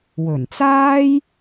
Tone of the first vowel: low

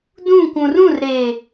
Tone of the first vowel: falling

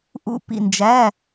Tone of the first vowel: falling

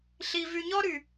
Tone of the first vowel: low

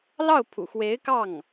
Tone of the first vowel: falling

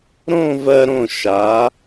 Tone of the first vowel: falling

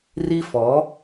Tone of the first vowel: high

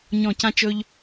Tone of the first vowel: falling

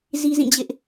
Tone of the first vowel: high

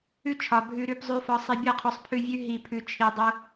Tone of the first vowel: high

